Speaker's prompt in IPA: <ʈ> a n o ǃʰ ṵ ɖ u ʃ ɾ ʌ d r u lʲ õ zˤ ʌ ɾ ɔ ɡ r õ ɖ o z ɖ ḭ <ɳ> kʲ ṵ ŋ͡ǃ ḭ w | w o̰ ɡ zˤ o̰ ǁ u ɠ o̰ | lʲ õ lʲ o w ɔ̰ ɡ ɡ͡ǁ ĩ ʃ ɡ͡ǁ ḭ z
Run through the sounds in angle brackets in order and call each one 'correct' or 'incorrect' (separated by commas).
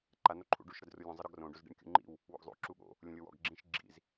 incorrect, correct